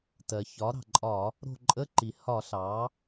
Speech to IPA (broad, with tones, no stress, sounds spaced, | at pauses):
t ɜ˩ ç ɒ˩˥ ɾ ɑ̤˩ ǃʼ ɒ˧˩˧ | ɾ o̤˦˨ ǃʼ ə˧˥˧ ǃ i˩ h ɒ˧˩˧ ɬ ɑ˩˥